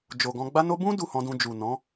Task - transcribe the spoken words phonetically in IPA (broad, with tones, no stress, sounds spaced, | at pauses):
d͡ʒ o˨ ɡ ɔ̃˧ ɡ͡b a˧ n o˧ b ũ˦ d u˦˨ h ɔ̃˧ d ũ˧ d͡ʒ u˨ n ɔ̃˨˦